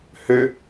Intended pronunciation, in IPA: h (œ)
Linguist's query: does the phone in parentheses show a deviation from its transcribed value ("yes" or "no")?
yes